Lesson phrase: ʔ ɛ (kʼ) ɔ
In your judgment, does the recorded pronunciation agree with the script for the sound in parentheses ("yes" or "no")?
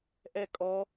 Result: yes